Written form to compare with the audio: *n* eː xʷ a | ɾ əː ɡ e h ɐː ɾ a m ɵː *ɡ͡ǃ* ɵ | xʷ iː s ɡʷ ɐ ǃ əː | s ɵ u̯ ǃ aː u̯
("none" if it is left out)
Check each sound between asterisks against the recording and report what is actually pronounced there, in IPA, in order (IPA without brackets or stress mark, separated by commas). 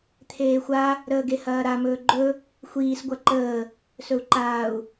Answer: t̪ʰ, ɡ͡ǃ